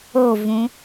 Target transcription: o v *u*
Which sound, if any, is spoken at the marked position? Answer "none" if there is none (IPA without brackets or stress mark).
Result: ũ